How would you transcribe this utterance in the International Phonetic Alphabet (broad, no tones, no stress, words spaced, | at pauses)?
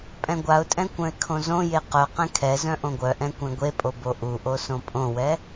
pʼɛ̃ɡʷaʊ̯tʼɛ̃ kʷœ̃ɪ̯kʰõzõje qœ qɛ̃kʰɛzœ̃ ʔõɡʷœʔɛ̃ kʷɛ̃ɡʷepʼo boʔuʔo sõpʼõwɛ